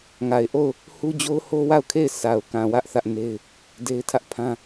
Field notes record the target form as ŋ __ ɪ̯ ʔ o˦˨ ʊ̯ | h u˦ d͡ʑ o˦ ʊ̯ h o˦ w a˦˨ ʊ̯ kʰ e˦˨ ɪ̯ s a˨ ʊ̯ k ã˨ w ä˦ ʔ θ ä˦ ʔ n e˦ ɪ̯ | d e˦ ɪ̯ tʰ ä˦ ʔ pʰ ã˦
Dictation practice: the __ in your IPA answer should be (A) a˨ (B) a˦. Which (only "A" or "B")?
A